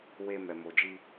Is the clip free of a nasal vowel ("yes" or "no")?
yes